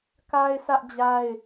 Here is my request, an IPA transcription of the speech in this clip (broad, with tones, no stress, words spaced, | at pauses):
ka˦ɪ̯sʰä˦ʔd͡ʑa˦ɪ̯